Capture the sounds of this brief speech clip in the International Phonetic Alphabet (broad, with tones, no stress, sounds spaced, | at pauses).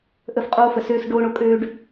ʔ ə˦˨ f qʼ oː˦ f ə˨ s øː˦ s ɖ oː˦ ɳ o˦ kʼ øː˦ ɖ